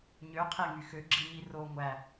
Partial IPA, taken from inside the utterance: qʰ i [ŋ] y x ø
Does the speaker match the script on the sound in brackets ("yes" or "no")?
yes